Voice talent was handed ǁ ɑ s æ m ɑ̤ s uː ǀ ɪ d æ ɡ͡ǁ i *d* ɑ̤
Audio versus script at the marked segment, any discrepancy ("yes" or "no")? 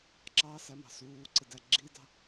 no